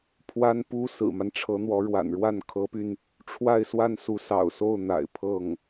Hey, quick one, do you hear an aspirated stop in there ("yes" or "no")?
yes